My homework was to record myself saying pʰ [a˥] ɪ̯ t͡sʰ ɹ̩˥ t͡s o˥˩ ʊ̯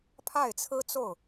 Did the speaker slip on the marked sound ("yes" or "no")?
yes